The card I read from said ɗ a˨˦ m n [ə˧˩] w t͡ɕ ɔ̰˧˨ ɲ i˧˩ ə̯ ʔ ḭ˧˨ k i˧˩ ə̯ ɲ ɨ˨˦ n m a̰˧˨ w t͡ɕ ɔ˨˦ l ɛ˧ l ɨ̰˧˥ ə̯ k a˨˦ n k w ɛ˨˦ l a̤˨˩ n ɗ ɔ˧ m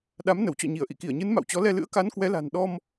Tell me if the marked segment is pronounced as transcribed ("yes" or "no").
yes